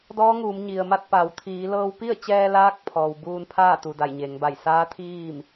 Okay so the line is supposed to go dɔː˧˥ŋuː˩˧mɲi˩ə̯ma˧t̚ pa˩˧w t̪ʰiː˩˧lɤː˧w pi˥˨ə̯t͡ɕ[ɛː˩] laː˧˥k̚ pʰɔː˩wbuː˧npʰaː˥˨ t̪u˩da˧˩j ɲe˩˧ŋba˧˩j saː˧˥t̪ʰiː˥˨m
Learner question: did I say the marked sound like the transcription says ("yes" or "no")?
no